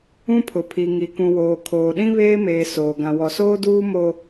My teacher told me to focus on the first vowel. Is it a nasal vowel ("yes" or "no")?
yes